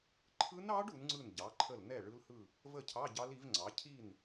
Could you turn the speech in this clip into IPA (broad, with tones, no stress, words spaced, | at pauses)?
ǃʰɯ˦˥nɑ˦˥ɖ u˩˥nŋ͡ǀɯ˥˩nɟɑ˩˥ǃʰə˥˩l nɛ˥˩ ɭɯ˦˥lhɯ˥˩ | və˥˩cʰɑ˧˥˧ ɟɑ˦˥li˩˥vŋ͡ǀɑ˩˥ cʰi˥˩n